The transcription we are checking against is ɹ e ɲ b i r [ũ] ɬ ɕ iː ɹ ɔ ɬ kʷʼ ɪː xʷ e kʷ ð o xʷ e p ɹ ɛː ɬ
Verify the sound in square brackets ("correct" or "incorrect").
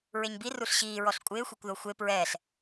incorrect